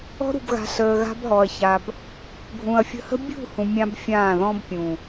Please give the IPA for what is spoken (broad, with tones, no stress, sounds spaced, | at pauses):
ɔ̤˧ ɾ ṳ˨ b ɣ a̤˨ ɬ əː˨ ɣ a̤˧ b ɦ ɔ˨ ɐ̯ ç a˨ b | ɡʱ ũ˨ ɐ̯ fʲ ə̤˧ h ə̤˦ bʲ ṳ˦˨ h ũ˧ mʲ ã˦ b fʲ ãː˦˨ ð ɔ̃˦ b pʲ ũ˨